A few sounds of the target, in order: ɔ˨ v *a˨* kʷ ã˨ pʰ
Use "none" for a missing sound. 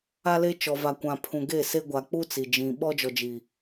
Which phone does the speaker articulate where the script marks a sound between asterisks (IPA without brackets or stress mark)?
a˨